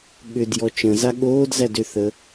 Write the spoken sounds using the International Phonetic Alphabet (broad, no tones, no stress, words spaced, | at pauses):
ɠʏdjɔ t͡ʃə̃za ɠoːd zædʏθə